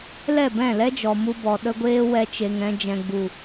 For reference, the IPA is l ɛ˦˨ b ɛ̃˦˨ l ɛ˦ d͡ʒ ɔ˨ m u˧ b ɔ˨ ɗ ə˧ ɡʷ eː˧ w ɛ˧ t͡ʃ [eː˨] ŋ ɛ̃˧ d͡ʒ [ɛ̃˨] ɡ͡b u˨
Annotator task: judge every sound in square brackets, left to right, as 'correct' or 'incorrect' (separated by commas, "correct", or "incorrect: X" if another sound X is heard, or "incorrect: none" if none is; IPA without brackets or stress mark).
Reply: incorrect: e˨, correct